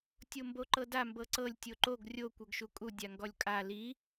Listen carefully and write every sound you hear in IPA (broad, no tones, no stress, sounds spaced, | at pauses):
tʲ o m b o ǃ ɤ d a m b ɤ ǀ ɤ lʲ tʲ o ǃ o ɡ rʲ o kʷ ɤ ɡ ʃ u kʼ u dʲ a ŋ ɡ ɔ lʲ kʼ a l i